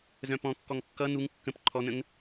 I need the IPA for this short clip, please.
z œ̃ p ɔ̃ kː ɔ ŋ kː ʌ n̪ u ŋ kː ə̃ p ǃʰ ɔ n̪ ə̃ ŋ

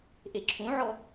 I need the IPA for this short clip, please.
ʔ e ǁʰ ũ ʕ ɔ

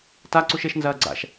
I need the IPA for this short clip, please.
t a ǀ u ʃ e ʃ n z ɐː ɡ͡ǀ a̰ ʃ

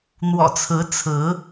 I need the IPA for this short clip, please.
n̪ w ɔ̰˨˩ t͡sʰ ɹ̩˨˦ t͡sʰ ɹ̩˨˦

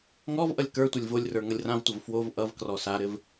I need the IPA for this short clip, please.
ŋ ɔ v ʔ ʌ lʲ k ə˞ tʷ ʌ lʲ v o lʲ r ə˞ ŋ ʌ lʲ r ã v tʷ ʌ v f w o v ʔ ʌ v k r ɔ s a ɾ ɘ v

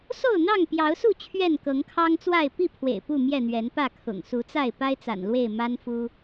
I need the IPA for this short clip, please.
s o˥˨ ʊ̯ n̪ ɑ˥˨ ŋ p j ɑ˨˦ ʊ̯ s u˥˨ t͡ɕʰ ɥ ɛ˥˨ n k ɤ˨˦ ŋ kʰ ɑ˦ ŋ t͡s w a˥˨ ɪ̯ p i˥˨ pʰ w ḛ˨˩ ɪ̯ p u˥˨ m j ɛ˥˨ n̪ ɥ ɛ˨˦ n p ä˥˨ kʰ ʊ̰˨˩ ŋ s u˨˦ t͡s a˥˨ ɪ̯ p a˦ ɪ̯ t͡s a̰˨˩ n l w e˥˨ ɪ̯ m a˦ n f u˦

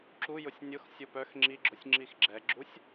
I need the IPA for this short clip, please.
ǁ u j ʊ sʲ nʲ ʊ x sʲ ʊ p œ x ŋ͡ǁ i ɡ͡ǁ ʊ sʲ ŋ͡ǁ i x ɡ͡ǁ ɛ ɡ͡ǁ u sʲ

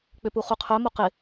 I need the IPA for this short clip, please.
k͡p ʏ p u χ u qʰ œ m o q ɪ

